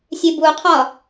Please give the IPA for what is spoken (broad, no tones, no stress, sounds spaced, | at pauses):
sʲ e b u qʰ ɒ